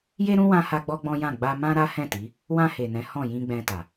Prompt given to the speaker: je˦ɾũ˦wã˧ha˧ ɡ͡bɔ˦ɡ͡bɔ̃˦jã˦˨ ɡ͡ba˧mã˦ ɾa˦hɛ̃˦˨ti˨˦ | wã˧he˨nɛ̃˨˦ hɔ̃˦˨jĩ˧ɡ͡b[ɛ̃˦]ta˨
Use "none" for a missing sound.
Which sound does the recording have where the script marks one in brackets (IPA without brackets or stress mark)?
ɛ̃˧